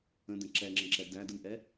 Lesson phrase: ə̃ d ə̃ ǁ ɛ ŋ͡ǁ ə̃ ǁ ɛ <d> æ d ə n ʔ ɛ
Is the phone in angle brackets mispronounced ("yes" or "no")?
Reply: no